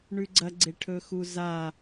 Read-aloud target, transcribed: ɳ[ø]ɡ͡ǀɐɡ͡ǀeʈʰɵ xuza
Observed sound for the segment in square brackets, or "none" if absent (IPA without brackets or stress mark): ʉ